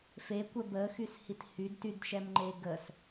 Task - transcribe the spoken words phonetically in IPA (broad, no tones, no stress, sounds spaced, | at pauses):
f e kʷ ɛ b ə x y s h i t h y d t y d ʃ ɛ m ŋ͡ǃ e ɡ ə s